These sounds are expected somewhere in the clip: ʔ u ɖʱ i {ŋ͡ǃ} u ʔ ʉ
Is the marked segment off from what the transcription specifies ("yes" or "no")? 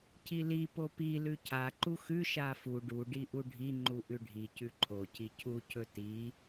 no